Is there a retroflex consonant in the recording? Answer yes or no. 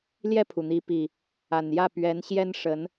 yes